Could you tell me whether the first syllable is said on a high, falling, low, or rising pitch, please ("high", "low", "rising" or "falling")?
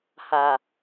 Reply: low